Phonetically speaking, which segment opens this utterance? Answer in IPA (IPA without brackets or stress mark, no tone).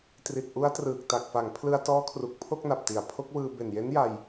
t